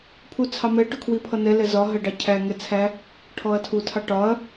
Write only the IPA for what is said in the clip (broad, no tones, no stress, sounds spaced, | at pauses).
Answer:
pʰ u t͡sʰ ɑ m ɛ ʈ ʊ kʰ w i pʰ ʌ n ɛ l ɛ z ɒ ɦ ɜ ɖ ɑ cʰ æ ŋ ɛ t͡sʰ æ | ʈʰ ɔ ɐ̯ tʰ u tʰ ɑ ʈ ɒ ɐ̯